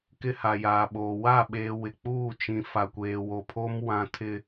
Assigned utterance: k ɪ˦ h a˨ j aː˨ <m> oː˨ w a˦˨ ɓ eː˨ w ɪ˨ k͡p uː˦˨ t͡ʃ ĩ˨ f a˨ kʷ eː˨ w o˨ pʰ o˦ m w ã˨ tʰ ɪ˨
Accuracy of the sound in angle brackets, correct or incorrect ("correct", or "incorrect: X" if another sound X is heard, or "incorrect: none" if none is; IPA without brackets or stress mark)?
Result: incorrect: ɓ